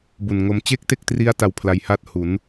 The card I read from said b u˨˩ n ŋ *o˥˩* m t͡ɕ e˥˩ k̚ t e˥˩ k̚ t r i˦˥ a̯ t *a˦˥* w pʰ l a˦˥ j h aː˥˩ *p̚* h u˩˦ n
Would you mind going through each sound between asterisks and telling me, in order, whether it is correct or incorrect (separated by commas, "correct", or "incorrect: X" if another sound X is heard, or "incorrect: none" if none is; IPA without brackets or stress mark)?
incorrect: o˧, correct, incorrect: t̚